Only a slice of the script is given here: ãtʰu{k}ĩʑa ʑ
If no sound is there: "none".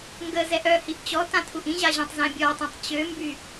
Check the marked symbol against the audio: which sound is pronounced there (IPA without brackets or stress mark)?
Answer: ʔ